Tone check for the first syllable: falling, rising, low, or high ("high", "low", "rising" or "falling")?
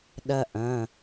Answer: high